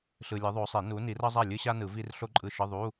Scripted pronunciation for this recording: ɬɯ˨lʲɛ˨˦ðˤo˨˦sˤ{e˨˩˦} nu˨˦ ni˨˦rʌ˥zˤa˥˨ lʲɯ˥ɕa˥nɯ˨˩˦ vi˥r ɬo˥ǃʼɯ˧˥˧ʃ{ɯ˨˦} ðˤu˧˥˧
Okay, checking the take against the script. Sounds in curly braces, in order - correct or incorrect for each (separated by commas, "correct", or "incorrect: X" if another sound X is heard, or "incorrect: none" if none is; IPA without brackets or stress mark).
correct, incorrect: ɯ˧˥˧